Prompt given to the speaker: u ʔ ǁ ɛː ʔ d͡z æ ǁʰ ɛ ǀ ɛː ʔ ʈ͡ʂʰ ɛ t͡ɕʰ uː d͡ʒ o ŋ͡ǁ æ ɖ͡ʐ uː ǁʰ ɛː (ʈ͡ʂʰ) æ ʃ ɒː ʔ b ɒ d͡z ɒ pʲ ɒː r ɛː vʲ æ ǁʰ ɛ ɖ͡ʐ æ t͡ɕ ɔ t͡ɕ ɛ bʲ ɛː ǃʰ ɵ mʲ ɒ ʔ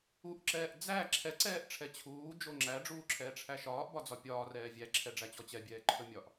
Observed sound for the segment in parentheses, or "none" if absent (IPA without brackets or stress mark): ʈ͡ʂʰ